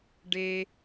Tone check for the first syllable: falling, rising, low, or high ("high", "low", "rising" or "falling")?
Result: low